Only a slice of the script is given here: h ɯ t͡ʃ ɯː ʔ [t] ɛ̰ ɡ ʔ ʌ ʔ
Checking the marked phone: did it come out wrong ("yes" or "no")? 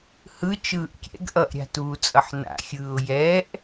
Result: yes